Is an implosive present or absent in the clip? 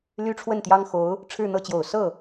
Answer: absent